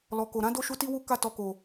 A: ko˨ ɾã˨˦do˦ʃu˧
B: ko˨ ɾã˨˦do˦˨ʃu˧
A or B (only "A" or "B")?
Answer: B